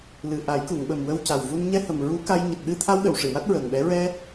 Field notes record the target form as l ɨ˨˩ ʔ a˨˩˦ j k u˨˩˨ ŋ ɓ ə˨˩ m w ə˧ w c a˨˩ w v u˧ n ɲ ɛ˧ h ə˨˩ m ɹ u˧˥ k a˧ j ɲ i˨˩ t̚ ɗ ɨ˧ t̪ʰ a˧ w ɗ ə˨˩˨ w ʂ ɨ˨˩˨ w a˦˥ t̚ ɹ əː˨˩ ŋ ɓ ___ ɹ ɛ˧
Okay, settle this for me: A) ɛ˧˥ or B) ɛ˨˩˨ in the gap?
A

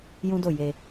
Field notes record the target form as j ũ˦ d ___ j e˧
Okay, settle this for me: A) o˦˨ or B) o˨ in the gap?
A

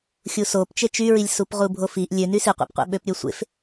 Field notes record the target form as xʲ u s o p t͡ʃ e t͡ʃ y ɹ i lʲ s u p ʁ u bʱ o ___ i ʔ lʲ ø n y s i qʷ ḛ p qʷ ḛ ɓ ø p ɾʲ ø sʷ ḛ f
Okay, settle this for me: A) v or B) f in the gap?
B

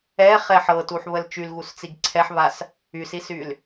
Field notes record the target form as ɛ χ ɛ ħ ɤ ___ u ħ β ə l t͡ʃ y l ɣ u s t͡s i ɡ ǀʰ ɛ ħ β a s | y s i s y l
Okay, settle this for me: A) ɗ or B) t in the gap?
B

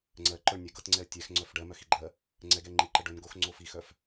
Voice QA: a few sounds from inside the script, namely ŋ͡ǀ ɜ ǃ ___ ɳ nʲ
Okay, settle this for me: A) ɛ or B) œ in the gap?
B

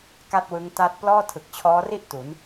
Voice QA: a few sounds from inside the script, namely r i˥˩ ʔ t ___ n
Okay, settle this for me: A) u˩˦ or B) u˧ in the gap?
A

